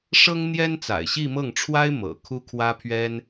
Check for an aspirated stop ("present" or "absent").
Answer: present